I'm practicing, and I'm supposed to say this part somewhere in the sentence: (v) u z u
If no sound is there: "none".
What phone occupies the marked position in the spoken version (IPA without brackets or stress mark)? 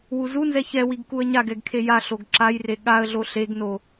w